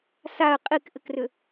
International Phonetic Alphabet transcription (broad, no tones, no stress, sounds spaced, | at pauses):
s a ə̯ qʼ i k ʔ ɘ k r ʏ